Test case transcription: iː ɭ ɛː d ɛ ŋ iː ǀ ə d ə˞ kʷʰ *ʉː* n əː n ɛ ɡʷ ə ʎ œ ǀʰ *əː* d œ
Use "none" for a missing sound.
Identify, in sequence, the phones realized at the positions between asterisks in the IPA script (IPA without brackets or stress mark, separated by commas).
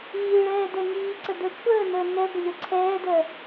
əː, ɛː